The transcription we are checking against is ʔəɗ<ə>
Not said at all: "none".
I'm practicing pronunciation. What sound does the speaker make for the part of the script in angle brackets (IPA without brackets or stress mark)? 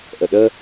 ə